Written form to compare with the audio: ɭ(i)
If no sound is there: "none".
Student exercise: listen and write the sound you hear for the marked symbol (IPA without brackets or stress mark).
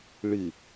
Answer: ɨ